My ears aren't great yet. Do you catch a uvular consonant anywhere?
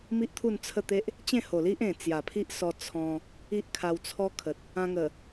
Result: no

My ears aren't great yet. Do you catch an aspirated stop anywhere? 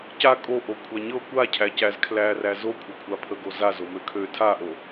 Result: yes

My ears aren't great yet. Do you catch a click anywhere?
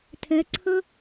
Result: yes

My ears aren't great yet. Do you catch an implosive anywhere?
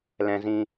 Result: no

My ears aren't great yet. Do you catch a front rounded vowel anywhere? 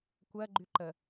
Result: yes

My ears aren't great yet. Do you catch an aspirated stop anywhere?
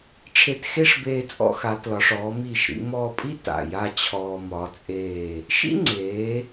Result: yes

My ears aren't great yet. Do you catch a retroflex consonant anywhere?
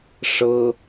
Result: yes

